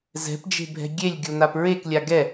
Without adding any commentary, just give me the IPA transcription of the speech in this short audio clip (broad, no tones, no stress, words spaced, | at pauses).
zɛ̤pd͡ʒe̤bʱɛ̤ ɡʲelʲɡʲon̪ap ɹeklʲa ɡɛ